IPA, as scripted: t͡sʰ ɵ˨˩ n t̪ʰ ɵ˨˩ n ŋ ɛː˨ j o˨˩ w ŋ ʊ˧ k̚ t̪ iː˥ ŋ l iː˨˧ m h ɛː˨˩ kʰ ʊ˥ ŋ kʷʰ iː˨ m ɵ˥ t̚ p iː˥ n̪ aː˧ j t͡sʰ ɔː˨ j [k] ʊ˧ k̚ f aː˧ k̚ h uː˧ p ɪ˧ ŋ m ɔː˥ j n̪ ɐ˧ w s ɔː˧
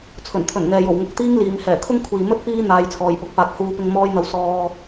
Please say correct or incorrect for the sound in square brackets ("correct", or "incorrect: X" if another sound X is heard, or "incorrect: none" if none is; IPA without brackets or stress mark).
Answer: incorrect: p